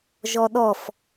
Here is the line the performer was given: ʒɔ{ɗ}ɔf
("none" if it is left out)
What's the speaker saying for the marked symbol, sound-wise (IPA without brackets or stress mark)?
ɗ